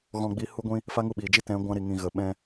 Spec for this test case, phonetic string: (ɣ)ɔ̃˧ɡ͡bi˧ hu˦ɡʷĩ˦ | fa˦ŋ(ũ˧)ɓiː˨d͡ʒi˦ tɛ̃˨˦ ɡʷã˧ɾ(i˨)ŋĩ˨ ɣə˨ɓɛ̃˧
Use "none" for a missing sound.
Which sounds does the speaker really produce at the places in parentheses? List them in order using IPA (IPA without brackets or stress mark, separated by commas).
ɣ, u˧, i˨